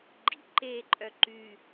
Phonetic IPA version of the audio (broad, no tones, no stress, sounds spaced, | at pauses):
ɡ͡ǃ ḭ ǃ eː ǃʼ œ ǃ y